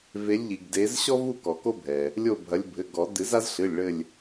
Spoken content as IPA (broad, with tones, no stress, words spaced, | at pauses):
ve˨˦lʲʎi˩ɡ de˨˦z ɕɔ˦vu˦˨ kɔ˩ko˦bʱɛ˩ | lʲo˦˨bʱɐ˨˦lʲ bʱɘ˩˧˩ɡɔ˨˩˦ dɨ˨˩˦za˦zɬɨ˩˧˩lʲ ɭɘ˦˨lʲ